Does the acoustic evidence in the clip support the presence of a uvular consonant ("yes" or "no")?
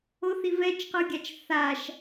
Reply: yes